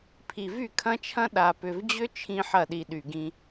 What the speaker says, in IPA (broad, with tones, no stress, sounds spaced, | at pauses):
pʰ i˨ v y˦˨ kʰ ɐ̃˦ t͡ʃʰ ɐ̃˦ ɗ a˨ p ʏ˨ v d͡ʑ ʏ˦ t͡ʃʰ ĩ˦ ħ ɐ˦˨ ɗ i˨ ɗ y˨ ɡ ĩ˦